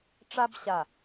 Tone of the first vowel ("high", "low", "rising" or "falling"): high